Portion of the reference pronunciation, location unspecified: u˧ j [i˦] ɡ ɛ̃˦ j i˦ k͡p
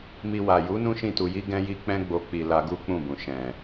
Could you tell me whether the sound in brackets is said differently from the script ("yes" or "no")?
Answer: no